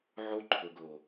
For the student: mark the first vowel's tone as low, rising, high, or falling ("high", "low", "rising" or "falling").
high